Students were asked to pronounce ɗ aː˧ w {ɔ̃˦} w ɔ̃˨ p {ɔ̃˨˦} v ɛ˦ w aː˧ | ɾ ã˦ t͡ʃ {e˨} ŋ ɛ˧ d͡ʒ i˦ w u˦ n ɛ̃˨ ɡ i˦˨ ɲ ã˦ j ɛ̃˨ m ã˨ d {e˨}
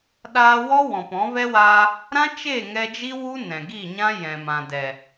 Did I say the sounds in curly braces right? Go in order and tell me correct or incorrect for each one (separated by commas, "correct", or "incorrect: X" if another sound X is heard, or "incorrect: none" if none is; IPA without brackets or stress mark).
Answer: incorrect: ɔ˦, correct, incorrect: e˦˨, incorrect: ɛ˨